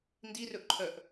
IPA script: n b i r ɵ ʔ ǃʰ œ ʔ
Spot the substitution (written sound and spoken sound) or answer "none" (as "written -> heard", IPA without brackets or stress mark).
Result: b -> d